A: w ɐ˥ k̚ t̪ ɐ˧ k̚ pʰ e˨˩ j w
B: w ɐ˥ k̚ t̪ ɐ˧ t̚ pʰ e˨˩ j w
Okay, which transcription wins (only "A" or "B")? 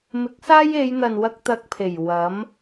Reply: A